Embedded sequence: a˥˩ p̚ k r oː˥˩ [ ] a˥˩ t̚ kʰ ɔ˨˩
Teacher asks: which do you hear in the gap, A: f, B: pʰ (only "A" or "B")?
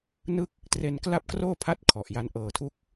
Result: B